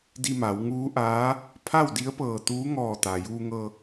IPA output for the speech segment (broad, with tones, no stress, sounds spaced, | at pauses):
d i˧ m a˩˧ w ŋ uː˧˥ ʔ aː˧˥ | pʰ a˥˨ w d i˧˥ ə̯ p ɤː˧˩ t̪ uː˧˥ ŋ ɔː˧˩ t̪ aː˩ j uː˧ ŋ ɤː˧